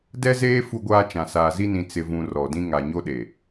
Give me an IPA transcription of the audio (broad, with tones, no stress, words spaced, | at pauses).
dɛ˦zeː˦ fu˦ɡʷaː˦t͡ʃã˨ saː˨zi˦nĩ˨ t͡sɪ˨vũ˨ rɔ˨dĩ˦ ŋa˨ɲo˦ ɗe˨